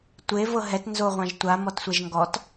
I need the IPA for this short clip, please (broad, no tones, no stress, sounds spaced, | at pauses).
tʷ e v ɤ ɦ ɛ t n z o ʁʷ ã ʒ tʷ a m ɔ t sʷ ɛ ʒ ŋ ɡ ɔ t